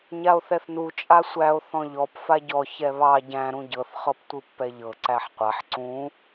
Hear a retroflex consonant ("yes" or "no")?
no